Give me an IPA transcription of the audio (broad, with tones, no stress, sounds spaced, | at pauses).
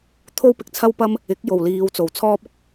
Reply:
t̪ʰ o˥ w p ɪ˨ k̚ t͡sʰ ɐ˥ w p ɐ˥ m | ɪ˨˥ k̚ j o˨˩ w l iː˨˧ w t͡s o˨˩ w t͡sʰ ɔː˥ p̚ ʊ˥ k̚